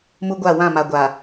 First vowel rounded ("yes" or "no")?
yes